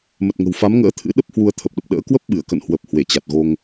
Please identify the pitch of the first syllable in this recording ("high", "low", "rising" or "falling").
low